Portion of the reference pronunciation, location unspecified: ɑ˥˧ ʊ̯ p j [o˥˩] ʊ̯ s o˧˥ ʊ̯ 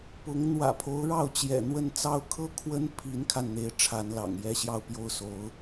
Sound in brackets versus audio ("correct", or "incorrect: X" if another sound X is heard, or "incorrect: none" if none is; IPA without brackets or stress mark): correct